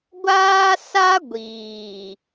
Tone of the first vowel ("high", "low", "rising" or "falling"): high